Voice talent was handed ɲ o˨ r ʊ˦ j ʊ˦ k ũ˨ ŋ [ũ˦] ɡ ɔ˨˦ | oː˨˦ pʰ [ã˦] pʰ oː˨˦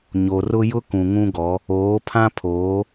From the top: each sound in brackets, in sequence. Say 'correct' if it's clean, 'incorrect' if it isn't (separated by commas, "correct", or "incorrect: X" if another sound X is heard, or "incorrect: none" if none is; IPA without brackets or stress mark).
correct, correct